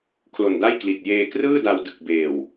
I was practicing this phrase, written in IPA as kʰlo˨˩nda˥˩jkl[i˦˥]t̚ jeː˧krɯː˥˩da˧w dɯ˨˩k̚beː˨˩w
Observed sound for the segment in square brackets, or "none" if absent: i˨˩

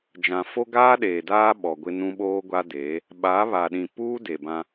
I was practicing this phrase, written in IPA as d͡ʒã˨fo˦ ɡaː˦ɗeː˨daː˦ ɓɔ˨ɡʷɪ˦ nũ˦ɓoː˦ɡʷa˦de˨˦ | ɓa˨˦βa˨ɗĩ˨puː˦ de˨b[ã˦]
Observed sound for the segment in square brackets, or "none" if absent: ã˦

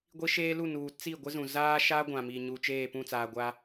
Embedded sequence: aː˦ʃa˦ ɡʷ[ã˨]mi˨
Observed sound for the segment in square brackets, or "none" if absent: ã˨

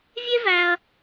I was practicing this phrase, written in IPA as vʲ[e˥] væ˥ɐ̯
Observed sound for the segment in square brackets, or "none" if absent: e˥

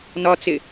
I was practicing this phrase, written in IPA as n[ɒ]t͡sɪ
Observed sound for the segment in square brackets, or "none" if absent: ɒ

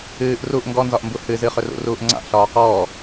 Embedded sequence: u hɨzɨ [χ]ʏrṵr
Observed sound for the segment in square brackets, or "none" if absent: χ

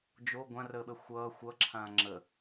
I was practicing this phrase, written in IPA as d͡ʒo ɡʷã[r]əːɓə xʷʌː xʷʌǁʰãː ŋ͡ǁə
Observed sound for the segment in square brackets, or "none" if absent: r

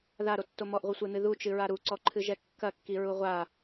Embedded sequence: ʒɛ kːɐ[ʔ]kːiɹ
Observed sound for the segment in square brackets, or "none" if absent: none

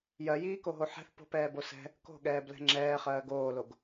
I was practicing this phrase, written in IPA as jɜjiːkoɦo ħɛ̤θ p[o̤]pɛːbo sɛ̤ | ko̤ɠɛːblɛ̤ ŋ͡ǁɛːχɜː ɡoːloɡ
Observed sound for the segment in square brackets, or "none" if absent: o̤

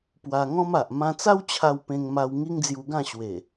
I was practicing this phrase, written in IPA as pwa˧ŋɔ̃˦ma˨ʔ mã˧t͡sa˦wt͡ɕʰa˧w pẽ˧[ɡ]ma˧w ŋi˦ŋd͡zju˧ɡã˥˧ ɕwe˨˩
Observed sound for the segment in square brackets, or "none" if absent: ŋ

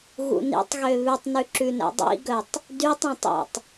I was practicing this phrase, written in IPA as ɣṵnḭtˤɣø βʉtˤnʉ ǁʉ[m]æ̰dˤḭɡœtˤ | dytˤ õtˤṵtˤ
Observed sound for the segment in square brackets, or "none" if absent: n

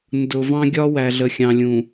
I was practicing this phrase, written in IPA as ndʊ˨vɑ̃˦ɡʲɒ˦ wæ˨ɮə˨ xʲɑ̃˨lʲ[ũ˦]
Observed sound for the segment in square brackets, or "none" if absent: ũ˨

